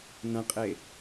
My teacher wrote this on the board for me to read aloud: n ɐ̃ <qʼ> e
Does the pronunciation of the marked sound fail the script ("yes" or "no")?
no